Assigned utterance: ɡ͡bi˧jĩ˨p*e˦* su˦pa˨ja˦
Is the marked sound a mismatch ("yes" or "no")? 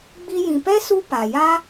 yes